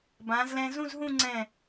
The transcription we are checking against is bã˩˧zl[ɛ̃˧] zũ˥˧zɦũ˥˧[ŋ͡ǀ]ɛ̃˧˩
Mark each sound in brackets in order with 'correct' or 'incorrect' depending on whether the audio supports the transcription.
correct, correct

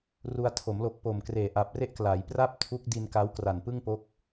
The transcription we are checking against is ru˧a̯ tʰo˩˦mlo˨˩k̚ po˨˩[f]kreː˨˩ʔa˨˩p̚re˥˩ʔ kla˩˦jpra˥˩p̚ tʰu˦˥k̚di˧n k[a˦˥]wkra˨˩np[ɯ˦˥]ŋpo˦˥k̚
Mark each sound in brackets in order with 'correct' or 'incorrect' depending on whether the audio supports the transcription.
incorrect: m, correct, incorrect: ɯ˥˩

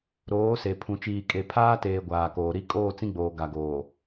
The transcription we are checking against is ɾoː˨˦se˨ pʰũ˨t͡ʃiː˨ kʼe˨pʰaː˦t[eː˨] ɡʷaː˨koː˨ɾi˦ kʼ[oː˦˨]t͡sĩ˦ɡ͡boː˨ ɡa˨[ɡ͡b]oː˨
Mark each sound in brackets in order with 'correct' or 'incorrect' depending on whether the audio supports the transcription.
correct, correct, incorrect: ɡ

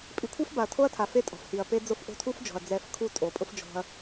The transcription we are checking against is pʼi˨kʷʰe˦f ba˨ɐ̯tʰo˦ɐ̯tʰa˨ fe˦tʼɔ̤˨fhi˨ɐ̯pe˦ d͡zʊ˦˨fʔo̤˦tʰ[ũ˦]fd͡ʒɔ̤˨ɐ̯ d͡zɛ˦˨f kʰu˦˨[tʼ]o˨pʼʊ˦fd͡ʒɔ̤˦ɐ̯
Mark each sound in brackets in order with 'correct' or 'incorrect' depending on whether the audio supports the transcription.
incorrect: u˦, correct

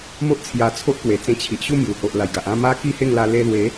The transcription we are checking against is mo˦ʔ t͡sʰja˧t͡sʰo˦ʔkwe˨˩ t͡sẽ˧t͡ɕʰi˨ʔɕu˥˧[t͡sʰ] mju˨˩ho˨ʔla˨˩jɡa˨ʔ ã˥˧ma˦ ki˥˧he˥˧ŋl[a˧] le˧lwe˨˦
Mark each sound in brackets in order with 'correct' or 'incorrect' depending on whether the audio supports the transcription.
incorrect: none, correct

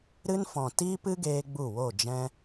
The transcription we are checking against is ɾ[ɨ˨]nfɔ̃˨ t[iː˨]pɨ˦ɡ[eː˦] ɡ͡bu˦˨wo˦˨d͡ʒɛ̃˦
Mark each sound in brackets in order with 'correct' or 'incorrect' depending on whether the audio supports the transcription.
incorrect: ɨ˧, incorrect: iː˦, incorrect: eː˧

